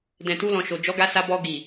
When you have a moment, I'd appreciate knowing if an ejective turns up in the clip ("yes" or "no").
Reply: no